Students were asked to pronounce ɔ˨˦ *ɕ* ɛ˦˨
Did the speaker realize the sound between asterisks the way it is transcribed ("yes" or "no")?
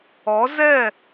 no